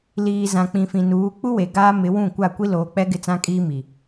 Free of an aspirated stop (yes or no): yes